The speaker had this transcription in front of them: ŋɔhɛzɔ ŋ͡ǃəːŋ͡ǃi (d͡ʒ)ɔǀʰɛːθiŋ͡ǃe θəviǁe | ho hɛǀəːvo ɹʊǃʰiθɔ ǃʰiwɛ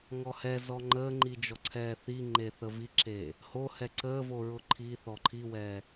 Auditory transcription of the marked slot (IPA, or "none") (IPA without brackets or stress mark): d͡ʒ